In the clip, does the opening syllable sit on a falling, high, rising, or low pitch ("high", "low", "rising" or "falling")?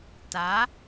rising